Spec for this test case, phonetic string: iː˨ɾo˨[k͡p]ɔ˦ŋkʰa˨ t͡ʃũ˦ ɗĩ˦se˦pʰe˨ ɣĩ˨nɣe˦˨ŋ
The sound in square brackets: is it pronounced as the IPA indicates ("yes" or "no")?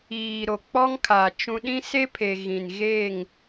yes